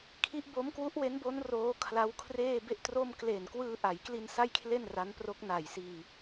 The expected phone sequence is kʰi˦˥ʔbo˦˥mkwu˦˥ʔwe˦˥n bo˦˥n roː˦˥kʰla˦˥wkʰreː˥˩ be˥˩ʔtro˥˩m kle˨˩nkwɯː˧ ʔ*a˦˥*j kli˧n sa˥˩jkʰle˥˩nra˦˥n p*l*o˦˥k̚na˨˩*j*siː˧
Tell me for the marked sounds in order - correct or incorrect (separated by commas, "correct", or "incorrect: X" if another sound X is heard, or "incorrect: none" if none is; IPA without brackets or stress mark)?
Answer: incorrect: a˩˦, incorrect: r, correct